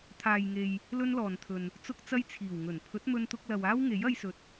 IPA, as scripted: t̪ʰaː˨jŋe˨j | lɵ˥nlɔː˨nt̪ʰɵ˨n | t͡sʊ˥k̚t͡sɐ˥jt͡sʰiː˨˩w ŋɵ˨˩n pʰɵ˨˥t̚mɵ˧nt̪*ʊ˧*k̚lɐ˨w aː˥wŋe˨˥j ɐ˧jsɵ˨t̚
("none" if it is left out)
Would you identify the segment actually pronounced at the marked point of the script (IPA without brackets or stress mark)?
ʊ˧